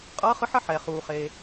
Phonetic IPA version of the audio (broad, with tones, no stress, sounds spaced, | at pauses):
qʼ ʌː˨˦ χ ɯ˨˦ ħ ʌ˦˨ ħ ɛ˩ χ uː˩ χ eː˩